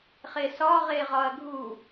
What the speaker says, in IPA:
χesɒ ʁeʁɒɐ̯ɡʱu

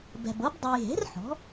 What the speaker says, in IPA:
bɛ̤˨bɤ˩˥b dˤɛ˨jɦe̤˩˥r ħɔ̤˩˥

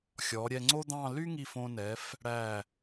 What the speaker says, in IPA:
xʲɔ˩˧ɾʲɛ˧ŋ͡ǀo˥d̪ɑ̃˥˧ ly˥ŋi˧˩f õ˧nɛ˩˧f | ɽæ˧˩

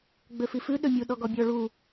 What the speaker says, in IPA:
ɡ͡bøfifʉ ɗømʲu ɗɔɡɔbʲɔ ɭu

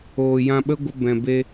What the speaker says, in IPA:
oː˨jã˧ɓə˦ɡʷə˧ bɛ̃˨be˧

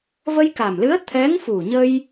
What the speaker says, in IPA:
və˧jka˨˩mlɨ˧˥ə̯ t̪ʰɛ˧˥ŋfu˨˩ɲə˧j

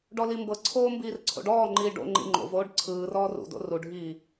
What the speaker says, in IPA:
ɖɔlimbɤǀʰoː mbiːrǀʰo̰ɖɔːŋ͡ǃiː ɖo̰ŋ͡ǃḭ ŋ͡ǃo̰voːɖ ǀʰɯːrɔːr ṵdo̰ ruɖʱiː

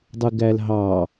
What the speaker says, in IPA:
dˤɯɡælɦɑ

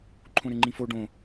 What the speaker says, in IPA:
ǃʰõɾɘŋ͡ǃĩfo ɖõ

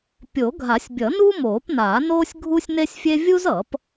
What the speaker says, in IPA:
pʲo˨˩˦ɡʱa˨˩˦sʲbʲʌ˨˩˦nu˥ moː˨˩˦pnaː˨˩˦ noː˥sʲɡʱu˥sʲne˥sʲfʲe˥ vʲu˥zʌ˨˩˦p

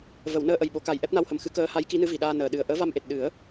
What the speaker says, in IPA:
və˨˩˨wnəː˧ ʔə˨˩j ɓo˨˩˦ka˨˩j ʔɛ˦˥p̚na˧whə˨˩m xɨ˧˥kəː˧˥ ha˧˥jki˧˥ nɨ˧˥vi˨˩˨ɗaː˧ nəː˨˩˨ɗɨ˨˩ə̯ ʔəː˧˥va˧mʔe˨˩t̚ ɗɨ˨˩˦ə̯

